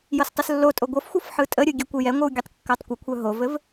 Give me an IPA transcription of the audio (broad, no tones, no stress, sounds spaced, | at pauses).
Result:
j ɤ s tˤ ə s lː o tʼ o ɡʷ ɤ f xʷ ɤ f ħ ɯ tʼ ə ɾʲ ɯ ɡʲ ɘ kʷ ɯ j ɛ ŋʷ ɯ w ɡʲ ɯ tˤ kː œ tˤ kʷ ə kʷʰ œ ɦ o v ɘ v